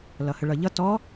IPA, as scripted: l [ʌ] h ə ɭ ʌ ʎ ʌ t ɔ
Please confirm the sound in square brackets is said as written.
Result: yes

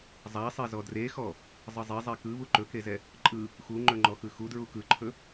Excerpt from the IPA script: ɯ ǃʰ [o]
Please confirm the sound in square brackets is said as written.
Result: no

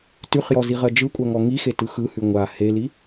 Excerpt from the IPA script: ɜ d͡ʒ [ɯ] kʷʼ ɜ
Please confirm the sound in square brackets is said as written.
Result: yes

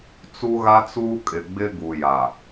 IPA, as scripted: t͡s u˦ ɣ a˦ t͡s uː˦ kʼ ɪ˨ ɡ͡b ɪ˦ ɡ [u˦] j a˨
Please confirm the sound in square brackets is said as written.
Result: no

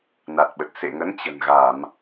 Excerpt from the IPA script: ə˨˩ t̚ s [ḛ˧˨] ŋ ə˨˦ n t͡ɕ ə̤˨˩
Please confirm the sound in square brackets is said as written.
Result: yes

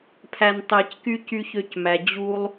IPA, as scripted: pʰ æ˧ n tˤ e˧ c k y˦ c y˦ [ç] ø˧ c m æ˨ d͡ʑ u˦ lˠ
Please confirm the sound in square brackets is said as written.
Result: yes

